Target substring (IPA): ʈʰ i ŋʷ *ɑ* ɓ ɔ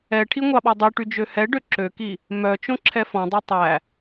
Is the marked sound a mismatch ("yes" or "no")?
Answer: no